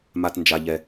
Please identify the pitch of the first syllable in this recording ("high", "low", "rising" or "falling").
low